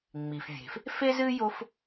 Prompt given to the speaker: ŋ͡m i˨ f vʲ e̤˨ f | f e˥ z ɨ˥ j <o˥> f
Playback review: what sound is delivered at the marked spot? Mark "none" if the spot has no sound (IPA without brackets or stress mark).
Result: o˥